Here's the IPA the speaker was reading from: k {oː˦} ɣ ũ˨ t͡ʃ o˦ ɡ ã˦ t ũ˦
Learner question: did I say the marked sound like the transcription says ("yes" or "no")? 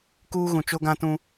no